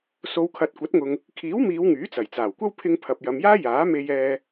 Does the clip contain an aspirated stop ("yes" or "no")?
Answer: yes